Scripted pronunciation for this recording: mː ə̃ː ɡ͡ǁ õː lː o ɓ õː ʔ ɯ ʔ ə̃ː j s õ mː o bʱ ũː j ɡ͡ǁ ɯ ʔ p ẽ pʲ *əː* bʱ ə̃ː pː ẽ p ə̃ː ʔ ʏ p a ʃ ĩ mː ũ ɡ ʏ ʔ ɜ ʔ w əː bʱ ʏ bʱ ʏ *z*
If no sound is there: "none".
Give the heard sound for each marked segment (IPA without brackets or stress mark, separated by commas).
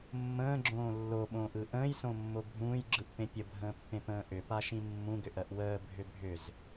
ə, z